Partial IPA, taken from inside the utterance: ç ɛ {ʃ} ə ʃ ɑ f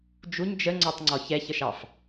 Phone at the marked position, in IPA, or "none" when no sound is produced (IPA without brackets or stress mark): ç